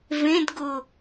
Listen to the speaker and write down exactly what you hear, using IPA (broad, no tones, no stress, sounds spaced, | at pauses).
v ẽ d ɡ ʊ